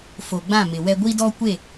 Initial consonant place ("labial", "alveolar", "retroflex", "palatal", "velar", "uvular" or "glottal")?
labial